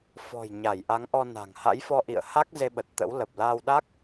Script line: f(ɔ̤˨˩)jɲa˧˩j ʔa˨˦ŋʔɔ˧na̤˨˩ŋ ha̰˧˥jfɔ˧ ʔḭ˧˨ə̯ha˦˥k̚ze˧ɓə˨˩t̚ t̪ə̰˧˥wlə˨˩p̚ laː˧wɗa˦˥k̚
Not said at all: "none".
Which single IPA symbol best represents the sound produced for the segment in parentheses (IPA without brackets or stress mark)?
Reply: ɔ̤˨˩